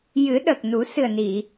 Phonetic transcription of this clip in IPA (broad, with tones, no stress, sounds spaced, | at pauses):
j ɨ˨˩˦ ɗ ə˨˩ k̚ n u˨˩˦ s ɨ˨˩ ə̯ n i˨˩˨